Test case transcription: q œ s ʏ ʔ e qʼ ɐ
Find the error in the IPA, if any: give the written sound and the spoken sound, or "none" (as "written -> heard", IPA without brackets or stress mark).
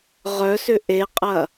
q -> ʁ